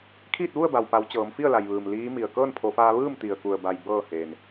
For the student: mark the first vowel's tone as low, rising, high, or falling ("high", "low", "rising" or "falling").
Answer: falling